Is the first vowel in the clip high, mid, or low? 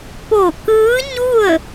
mid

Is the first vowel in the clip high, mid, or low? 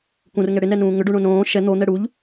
high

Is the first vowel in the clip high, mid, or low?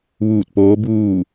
high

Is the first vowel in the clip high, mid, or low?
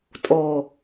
mid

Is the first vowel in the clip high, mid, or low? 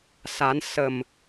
low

